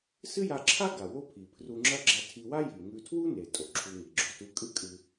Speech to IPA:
s ɨ˥ j a˧ ǁʰ a˥ ɡ a˩ w o˥ pʰ i˩ pʰ r u˧ ŋ͡ǁ ɐ˥ ɡ͡ǁ a˧ tʰ i˧ w a˥ j i˩ ŋ ʉ˧ tʰ w u˥ n e˩ tʼ o˩ ǁʰ u˧ ŋ i˩ ɡ͡ǁ o˧ t u˧ kʼ ɨ˥ kʼ ɨ˧

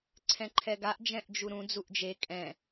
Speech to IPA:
ǀʰ ɛ̃ ǃʰ ɛ ɡ a ʔ d͡ʒ ɛ̃ ʔ d͡ʒ u ɾ ũ d͡z u ʔ d͡ʒ e kʼ ɛ̃

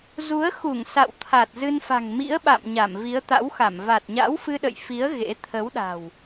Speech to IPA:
z u˨˦ ə̯ x u˧˩ ŋ s a̰˧˨ w t̪ʰ a˨˩ t̚ z ɨ˧ n f a̤˨˩ ŋ m ḭ˧˥ ə̯ ɓ a̰˧˨ m ɲ a˧˩ m v i˨˦ ə̯ t̪ a̰˧˥ w x a˧˩ m v a˨˩ t̚ ɲ a̰˧˥ w f ɨ˧ ɗ ə̰˧˨ j f i˨˦ ə̯ ɣ ḛ˧˥ t̪ʰ ə˨˦ w ɗ a̤˨˩ w

